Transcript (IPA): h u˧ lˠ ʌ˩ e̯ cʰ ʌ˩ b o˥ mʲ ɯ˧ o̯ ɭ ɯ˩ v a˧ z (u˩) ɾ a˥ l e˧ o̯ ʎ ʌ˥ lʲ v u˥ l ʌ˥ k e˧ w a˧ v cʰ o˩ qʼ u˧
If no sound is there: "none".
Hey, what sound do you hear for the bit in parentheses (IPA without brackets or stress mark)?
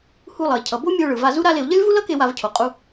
u˥